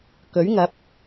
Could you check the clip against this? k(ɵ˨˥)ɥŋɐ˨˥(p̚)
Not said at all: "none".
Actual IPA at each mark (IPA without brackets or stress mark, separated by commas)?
ɵ˨˥, p̚